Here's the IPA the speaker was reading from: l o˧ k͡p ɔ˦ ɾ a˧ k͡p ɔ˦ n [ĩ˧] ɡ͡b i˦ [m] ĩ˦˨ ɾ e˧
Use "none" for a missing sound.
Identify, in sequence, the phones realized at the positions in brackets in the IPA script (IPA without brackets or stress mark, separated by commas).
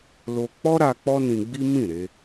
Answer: ĩ˧, m